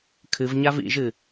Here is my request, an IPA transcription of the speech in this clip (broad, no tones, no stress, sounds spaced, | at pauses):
kʰ ɨ v ɲ a v ḭ ʒ ɨ